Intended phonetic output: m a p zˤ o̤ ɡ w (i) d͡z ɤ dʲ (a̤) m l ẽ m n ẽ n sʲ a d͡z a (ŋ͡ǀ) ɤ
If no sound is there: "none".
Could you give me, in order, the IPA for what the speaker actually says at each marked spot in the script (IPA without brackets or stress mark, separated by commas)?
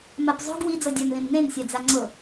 i, a, ŋ͡ǀ